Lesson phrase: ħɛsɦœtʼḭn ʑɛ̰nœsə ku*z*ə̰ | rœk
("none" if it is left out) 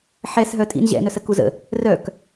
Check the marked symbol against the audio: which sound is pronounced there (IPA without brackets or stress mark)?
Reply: z